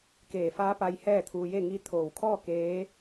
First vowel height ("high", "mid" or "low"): mid